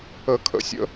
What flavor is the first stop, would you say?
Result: aspirated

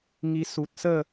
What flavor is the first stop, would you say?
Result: plain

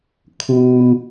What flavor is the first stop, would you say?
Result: aspirated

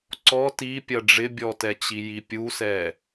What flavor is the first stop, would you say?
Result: click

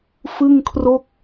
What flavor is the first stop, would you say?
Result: aspirated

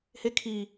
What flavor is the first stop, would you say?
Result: aspirated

